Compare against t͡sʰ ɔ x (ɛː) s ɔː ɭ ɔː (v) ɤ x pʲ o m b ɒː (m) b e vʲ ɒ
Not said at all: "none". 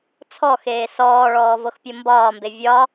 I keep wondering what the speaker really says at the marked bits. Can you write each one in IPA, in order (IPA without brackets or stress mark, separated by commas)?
eː, v, m